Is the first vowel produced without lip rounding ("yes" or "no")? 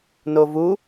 no